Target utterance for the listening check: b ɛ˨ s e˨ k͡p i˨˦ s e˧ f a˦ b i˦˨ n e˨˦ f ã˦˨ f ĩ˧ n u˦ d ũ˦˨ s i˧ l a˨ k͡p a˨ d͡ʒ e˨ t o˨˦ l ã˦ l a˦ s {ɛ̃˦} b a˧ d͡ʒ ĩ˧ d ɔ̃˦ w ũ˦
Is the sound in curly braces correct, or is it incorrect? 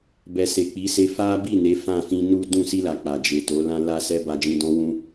incorrect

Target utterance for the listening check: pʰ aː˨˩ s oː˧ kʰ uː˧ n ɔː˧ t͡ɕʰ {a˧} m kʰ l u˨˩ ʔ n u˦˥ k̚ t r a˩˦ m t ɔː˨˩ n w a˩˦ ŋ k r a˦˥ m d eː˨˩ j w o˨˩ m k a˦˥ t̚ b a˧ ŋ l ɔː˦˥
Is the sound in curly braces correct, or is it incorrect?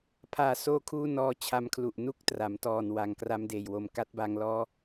correct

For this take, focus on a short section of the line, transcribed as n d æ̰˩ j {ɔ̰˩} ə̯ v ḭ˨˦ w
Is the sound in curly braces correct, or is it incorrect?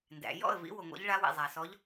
incorrect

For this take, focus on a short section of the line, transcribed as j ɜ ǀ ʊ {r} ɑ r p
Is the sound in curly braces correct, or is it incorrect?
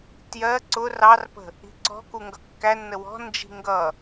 correct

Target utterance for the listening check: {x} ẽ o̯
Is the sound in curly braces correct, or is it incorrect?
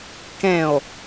incorrect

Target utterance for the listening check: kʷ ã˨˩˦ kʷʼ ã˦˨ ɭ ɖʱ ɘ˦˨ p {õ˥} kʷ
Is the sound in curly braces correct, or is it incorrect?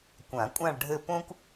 correct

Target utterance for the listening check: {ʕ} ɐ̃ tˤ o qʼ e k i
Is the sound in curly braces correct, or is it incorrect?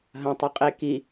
incorrect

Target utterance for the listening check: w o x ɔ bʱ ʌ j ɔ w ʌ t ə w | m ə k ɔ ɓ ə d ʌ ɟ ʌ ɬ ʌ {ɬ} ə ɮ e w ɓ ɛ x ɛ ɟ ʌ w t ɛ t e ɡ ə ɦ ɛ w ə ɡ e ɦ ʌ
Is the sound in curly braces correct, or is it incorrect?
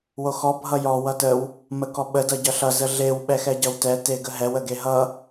incorrect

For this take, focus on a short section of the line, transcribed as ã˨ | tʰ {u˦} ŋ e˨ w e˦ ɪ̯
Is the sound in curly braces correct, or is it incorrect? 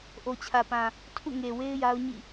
incorrect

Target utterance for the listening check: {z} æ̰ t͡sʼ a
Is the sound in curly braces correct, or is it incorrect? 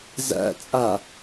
correct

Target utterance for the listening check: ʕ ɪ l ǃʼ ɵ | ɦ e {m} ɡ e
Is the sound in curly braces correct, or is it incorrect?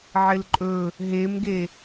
correct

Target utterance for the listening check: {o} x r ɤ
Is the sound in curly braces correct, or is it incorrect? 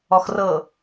incorrect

